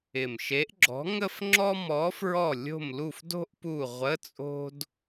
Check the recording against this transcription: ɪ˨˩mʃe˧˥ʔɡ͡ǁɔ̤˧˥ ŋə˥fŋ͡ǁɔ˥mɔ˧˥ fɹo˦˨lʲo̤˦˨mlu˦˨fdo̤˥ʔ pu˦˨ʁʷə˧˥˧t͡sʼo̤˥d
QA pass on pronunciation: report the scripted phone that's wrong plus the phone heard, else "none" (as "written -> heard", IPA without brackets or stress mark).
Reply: o˦˨ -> ɔ˦˨